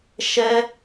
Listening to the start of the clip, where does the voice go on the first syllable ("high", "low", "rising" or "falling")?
high